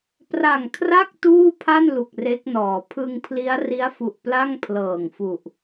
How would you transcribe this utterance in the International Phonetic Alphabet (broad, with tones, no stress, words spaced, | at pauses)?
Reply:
pra˨˩ŋ kʰra˥˩k̚ tuː˥˩pʰa˥˩n lu˨˩k̚re˦˥k̚nɔː˩˦ pʰɯ˧ŋpʰli˦˥a̯ ri˦˥a̯fu˨˩ʔ pla˥˩ŋpʰlɤː˨˩ŋfu˨˩ʔ